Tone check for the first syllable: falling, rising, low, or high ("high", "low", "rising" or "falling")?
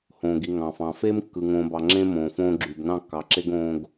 low